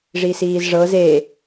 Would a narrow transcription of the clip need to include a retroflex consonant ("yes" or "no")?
yes